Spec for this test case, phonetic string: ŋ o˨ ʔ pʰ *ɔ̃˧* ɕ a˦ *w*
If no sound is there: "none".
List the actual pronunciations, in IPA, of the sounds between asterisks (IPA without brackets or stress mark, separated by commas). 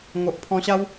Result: ɔ̃˧, w